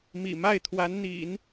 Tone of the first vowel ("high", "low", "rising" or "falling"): low